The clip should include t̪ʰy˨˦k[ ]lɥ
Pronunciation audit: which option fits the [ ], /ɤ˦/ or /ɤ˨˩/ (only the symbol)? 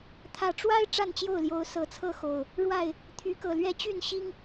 ɤ˨˩